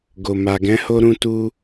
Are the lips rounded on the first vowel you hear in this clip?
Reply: yes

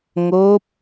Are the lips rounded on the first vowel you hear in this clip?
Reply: yes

